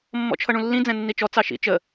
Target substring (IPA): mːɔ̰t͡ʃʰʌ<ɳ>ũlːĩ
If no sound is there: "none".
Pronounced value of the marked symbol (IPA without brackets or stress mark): ɳ